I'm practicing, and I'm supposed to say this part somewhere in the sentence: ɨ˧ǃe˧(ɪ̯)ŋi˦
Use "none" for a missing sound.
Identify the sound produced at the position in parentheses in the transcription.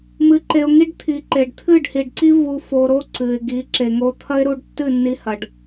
ʊ̯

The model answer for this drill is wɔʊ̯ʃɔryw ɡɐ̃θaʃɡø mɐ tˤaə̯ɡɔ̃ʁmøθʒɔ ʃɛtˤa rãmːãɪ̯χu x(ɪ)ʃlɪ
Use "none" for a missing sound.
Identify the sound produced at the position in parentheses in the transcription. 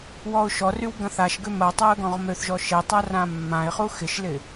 ɪ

